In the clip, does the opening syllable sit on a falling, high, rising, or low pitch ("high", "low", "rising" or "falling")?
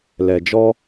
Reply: low